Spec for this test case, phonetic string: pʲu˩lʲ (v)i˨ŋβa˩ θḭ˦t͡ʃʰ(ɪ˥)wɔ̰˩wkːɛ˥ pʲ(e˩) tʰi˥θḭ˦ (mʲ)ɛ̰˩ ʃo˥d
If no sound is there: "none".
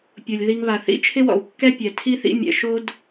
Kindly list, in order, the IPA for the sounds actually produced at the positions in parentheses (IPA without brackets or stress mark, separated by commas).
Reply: ð, ɪ˥, ɛ˩, mʲ